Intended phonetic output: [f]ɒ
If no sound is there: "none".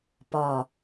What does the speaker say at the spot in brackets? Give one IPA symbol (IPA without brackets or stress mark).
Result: p